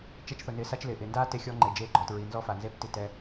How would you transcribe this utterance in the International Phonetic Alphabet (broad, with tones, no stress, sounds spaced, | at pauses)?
t͡ʃ ɛ˦ t͡ʃ θ ʊ˨ n ɪː˨ s a˦ t͡ʃ l ɪː˨ ʔ ɪː˨ n d aː˦ t e˦ xʲ ɔ˦ ŋ͡ǃ e˨ d͡ʒ e˦˨ ɡ͡ǃ ɔ˨ t ɹ i˨ n z ɔ˦ f a˨ n z e˦ p t i˨ t ɛ˦